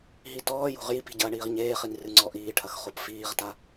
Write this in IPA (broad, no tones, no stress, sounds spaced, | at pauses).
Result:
ɦ i t ɔː j o̤ ʁ j i p i̤ ɟ ɐː ɳ iː ʁ ɲ eː χ i n r ɨ ŋ͡ǀ ɔ ʔ iː ʈʰ ɐ x χ o p f iː ʁ t a